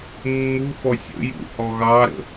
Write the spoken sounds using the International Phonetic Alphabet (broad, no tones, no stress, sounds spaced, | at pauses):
mː u f ɔ sʲ ə̰ j ṵ h ɔ ɣ ɑ ɾ ə̰